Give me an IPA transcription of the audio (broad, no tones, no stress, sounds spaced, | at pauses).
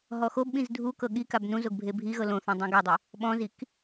ɦ ɔ x o b ɓ ĩ z dʱ u k ɤ ɠ i k a b n ũ z o ɡ bʱ e bʱ i ɣ ɤ l õ θ õ dˤ ũ ɡ ɛ dˤ ɯ | ɓ ɔ̃ z i k